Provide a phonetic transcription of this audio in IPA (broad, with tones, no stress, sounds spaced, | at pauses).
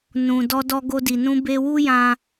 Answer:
n ũ˨ d ɔ˧ d ɔ˧ ɡ o˧ d i˨ n ũ˧ b e˧ w u˦ j ã˧